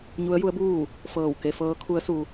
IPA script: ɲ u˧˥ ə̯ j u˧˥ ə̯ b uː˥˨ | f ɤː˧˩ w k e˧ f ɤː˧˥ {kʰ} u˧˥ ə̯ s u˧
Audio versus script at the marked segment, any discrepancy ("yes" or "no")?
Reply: no